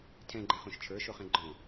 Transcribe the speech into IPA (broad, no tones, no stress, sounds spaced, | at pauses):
tʰ ɛ̃ ɡ͡ǃ ɛ̃ χ õ ʃ t͡ʃʰ ə˞ ʃ o χ ɛ̃ ɡ͡ǃ ɔ̃